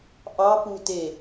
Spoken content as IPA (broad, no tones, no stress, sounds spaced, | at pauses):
ʔ ɑ p u t e